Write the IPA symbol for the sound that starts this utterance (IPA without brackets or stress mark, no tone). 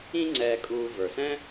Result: ĩ